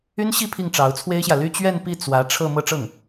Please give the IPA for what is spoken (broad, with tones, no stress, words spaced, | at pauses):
y˥nɕi˥˧ pʰi˥˩ŋʈ͡ʂɑ˧˥ʊ̯t͡sʰwe˥ɪ̯ɕjä˨ ly˥˧t͡ɕɥɛ˥˧npi˥˩ t͡swä˧˥ ʈ͡ʂʰɤ˥˧ mɤ˥˧ʈ͡ʂɤ˥˩ŋ